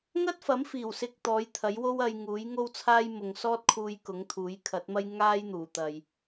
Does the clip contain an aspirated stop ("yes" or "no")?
yes